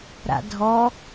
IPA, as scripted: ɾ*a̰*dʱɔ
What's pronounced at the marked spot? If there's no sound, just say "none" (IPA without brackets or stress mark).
a̰